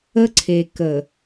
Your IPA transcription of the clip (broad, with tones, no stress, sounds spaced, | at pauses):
ə˦ ǀʰ e˨ k ə˨